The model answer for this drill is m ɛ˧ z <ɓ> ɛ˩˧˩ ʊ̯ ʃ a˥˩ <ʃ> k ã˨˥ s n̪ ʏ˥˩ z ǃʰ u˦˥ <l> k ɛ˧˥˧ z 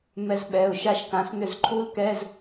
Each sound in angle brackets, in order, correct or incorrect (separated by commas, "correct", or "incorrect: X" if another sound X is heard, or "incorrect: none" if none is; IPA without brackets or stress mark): correct, correct, correct